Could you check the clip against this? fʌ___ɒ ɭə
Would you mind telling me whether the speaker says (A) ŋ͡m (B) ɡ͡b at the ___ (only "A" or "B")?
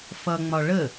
A